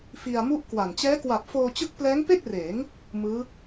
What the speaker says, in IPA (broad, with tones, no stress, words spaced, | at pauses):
fi˧a̯mu˥˩ʔkwa˨˩n t͡ɕɛː˦˥kwa˨˩p̚ foː˧t͡ɕɯ˦˥k̚plɛː˦˥ŋpe˥˩k̚ reː˩˦ŋ | mɯː˦˥